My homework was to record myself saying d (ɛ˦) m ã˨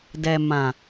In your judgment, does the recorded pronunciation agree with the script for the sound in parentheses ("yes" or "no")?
no